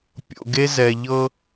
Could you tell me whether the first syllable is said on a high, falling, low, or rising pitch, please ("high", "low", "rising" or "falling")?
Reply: low